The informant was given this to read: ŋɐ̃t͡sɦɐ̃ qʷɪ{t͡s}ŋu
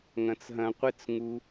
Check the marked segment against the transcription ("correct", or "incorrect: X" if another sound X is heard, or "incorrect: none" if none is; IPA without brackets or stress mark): correct